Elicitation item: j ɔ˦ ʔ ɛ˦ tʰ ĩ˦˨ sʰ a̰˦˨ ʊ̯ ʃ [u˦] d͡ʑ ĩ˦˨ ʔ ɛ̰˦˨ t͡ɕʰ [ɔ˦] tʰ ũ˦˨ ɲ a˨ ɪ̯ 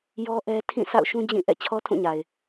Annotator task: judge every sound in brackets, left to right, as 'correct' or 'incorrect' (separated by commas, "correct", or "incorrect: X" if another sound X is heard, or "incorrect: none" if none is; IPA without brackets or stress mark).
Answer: incorrect: ũ˦, correct